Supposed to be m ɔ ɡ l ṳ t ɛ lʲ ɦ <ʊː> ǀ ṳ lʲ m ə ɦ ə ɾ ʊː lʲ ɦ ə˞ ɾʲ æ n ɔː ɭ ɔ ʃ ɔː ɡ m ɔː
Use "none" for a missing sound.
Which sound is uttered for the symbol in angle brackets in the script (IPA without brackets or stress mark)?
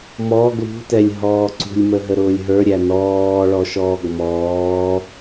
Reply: ɔː